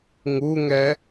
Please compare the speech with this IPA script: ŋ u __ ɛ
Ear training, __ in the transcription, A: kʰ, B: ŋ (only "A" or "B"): B